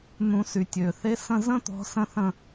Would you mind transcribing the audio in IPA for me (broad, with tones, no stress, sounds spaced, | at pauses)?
n̪ ũ˨˩˦ s y˩ tʲ ø˩ θ e˧˥ s ə̃˦˨ z ə̃˥ t̪ ɔ̤˧˥ s ə̃˥ θ ə̃˦˨